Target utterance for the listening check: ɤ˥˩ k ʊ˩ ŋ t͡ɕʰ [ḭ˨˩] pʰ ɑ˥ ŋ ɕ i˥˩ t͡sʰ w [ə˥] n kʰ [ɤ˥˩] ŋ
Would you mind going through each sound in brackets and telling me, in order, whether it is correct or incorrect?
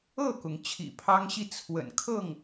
correct, incorrect: ə̰˨˩, correct

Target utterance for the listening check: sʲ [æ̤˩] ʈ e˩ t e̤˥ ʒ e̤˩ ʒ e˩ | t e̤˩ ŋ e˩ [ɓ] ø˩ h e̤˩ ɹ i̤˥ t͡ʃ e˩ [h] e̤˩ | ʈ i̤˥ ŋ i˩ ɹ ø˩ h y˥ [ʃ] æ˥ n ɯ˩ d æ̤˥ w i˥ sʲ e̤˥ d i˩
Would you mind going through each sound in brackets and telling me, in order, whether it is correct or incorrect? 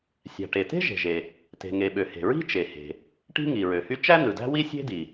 correct, correct, correct, incorrect: t͡ʃ

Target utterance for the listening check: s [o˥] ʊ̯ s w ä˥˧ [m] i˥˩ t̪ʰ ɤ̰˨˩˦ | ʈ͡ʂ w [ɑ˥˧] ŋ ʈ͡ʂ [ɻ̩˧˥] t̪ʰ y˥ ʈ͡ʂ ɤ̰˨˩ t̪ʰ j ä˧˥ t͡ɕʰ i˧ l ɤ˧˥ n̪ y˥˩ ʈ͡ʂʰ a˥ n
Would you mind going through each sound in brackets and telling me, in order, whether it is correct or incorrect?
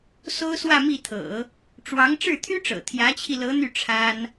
correct, correct, incorrect: ɑ˧˥, incorrect: ɻ̩˥˩

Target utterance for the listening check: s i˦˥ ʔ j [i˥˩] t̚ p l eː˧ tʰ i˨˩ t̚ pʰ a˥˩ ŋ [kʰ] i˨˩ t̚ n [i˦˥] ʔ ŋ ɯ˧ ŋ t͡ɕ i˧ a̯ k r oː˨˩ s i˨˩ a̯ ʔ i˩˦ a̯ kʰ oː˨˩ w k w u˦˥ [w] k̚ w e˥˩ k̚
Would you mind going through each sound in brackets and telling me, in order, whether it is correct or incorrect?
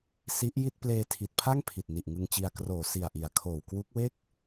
correct, incorrect: pʰ, incorrect: i˨˩, incorrect: none

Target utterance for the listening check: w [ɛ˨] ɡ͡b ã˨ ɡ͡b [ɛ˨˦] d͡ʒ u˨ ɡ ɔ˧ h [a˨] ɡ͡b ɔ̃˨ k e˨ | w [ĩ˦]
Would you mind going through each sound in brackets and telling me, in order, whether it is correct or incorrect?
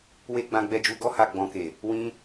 incorrect: e˨, incorrect: ɛ˨, correct, incorrect: ĩ˧

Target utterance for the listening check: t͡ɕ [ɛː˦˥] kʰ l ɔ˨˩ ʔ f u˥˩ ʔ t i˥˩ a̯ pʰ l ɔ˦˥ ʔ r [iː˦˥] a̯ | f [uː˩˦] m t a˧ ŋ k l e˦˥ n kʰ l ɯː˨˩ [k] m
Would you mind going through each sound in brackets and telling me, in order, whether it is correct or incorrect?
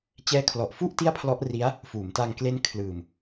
correct, incorrect: i˦˥, correct, incorrect: none

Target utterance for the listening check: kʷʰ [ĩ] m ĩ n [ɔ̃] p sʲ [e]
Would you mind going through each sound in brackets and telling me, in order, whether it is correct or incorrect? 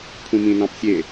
correct, incorrect: ɑ̃, correct

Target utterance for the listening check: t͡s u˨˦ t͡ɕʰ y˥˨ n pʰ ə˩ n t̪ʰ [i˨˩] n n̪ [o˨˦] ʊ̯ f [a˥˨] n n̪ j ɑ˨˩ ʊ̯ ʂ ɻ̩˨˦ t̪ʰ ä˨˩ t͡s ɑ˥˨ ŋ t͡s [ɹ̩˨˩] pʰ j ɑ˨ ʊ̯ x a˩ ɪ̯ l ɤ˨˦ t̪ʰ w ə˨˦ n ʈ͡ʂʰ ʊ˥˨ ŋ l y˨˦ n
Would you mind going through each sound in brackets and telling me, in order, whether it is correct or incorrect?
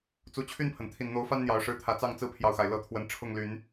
correct, correct, incorrect: a˦, incorrect: ɹ̩˦

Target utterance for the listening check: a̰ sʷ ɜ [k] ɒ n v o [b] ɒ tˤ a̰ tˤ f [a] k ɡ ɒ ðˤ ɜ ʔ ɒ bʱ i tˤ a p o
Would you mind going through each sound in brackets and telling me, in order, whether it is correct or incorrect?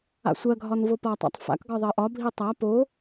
incorrect: ɡʱ, incorrect: p, incorrect: a̰

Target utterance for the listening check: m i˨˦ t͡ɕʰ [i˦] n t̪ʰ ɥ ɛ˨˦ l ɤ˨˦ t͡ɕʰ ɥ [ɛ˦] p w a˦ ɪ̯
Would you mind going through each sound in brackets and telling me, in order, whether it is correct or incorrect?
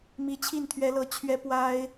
incorrect: i˥˨, correct

